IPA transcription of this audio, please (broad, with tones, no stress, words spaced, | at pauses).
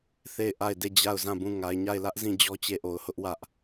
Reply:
θe˦˨ɪ̯ ʔa˦˨ɪ̯de˦˨ d͡ʑa˦˨ʊ̯zã˦˨bũ˦˨ ŋa˨ɪ̯ɲa˦˨ɪ̯lä˦ʔzĩ˦˨ d͡ʑɔ˦t͡ɕe˦˨ʔo˨ʊ̯hʊ˦ʔ wä˦ʔ